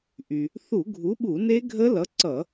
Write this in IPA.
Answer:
ʔ y˩ | θ u˧˩˧ ɡʱ u˨˥ ɓ u˧˩˧ n e˦˥ ɡʱ ə˦˥ l ʌ˨˥ ǀ ʌ˧˩˧

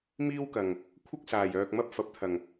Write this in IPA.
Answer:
m iː˥ w k ɐ˨˩ ŋ | kʷʰ ɐ˥ k̚ s aː˨˩ j œː˨ k̚ m ɐ˥ p̚ f ɐ˨ p̚ t̪ʰ ɐ˨˩ ŋ

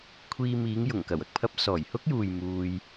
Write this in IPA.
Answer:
kʷʰ iː˧ m iː˨˧ ŋ j ʊ˨˩ ŋ k ɐ˨˩ w ɐ˨ k̚ pʰ ɐ˥ p̚ s ɔː˨˩ j h ʊ˥ k̚ j uː˨ j m uː˧ j

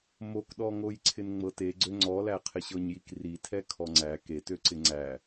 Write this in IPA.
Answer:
m o k ɗ ɔ ŋ o j ǀʰ ɪ n ŋ͡m ɤ t e ɡ͡ǀ ø ŋ͡ǀ ɔ l æ qʰ ɪ ɕ ɤ ɲ j i k r i tʰ ɛ kʰ ɔ ŋ͡ǀ æ k e t ø ǀ ɪ ŋ͡ǀ æ

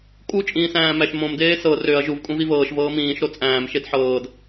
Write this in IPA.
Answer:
kʼ u t͡ʃʼ ĩː s æ̃ː m æ ʃ m õ m d eː s ɤ r ø ɐ̯ ʒ u v kʼ ũ v i v ɤː ʃ v ɤː m ĩː ʃ ɾ o t͡sʼ æ̃ː m ʃ e d ħ ɤː d

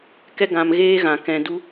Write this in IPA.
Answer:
k ɛ˦ ɡ ã˧ m ɣ eː˦ ɣ ã˨ k ɛ̃˨ d u˧

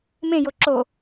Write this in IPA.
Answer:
m ẽ j o ǁ o

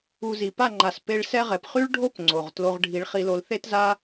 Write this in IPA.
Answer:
u˧ z i˨ p a˦˨ ŋ͡ǃ a˨ s p e˧ ɭ s ɛ˦ ʁ ɛ˨ p χ y˦ ɭ ɖʱ o˦ p ŋ͡ǀ o˨ ʁ t l o˧ ʁ ɖʱ i˨˦ ɭ χ i˧ l o˧ l θ e˦ t z a˦

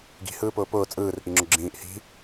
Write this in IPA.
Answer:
ɡ i̤ h ɯː p ʊː p ʊː t͡sʼ ɯː r ʔ i ŋ͡ǁ ʊ ɡ͡ǁ ĩː ʔ h i̤

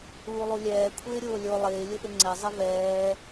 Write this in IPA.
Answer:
uː lˠ u lʲ ɛː kʷʰ ɪː ɾʲ ʊː lʲ o lˠ ɪː lʲ ʊ ʔ ɪ ŋ͡ǀ ɛ zˤ ɪ v ɛː

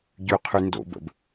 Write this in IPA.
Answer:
ɟ y qʰ y n d o̰ b ə̰ b

